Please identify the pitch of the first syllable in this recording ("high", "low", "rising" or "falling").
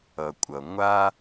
low